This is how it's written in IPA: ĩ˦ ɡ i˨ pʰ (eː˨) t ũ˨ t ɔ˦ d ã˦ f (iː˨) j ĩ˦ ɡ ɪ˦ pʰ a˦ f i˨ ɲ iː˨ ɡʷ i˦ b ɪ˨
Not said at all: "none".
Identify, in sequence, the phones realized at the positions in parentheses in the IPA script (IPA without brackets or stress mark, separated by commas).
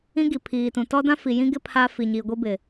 iː˨, i˨